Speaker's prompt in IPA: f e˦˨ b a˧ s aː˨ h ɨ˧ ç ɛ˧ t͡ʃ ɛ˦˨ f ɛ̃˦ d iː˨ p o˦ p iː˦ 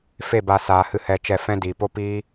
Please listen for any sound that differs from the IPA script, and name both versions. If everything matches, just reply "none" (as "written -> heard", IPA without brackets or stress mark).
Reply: ç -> h